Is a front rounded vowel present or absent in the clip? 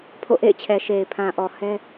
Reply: absent